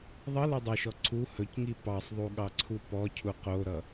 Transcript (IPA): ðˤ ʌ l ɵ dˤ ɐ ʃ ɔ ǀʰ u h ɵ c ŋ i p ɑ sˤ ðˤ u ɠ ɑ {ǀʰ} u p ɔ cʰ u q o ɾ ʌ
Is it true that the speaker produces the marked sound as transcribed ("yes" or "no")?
yes